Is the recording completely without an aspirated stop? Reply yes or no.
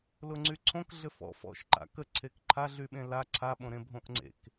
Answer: no